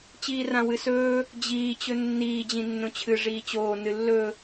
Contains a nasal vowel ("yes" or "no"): yes